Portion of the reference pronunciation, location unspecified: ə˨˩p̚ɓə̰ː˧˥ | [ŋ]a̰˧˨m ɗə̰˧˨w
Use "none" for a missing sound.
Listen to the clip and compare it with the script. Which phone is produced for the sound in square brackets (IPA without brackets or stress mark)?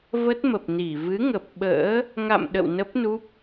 ŋ